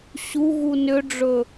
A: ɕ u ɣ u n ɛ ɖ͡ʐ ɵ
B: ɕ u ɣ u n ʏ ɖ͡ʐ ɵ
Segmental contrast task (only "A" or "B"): B